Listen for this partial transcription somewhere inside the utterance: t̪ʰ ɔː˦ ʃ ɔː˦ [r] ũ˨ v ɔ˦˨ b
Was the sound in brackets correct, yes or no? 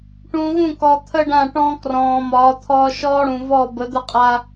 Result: no